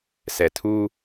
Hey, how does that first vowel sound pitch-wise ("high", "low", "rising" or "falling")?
low